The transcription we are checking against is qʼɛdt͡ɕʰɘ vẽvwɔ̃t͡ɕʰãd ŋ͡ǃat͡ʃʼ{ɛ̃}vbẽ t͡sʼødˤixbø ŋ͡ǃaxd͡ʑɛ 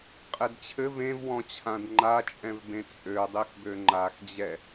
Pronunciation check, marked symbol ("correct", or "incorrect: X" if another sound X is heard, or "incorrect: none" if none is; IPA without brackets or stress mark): correct